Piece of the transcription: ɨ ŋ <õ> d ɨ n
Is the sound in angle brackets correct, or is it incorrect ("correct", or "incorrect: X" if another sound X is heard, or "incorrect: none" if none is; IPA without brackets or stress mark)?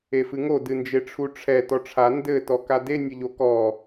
incorrect: o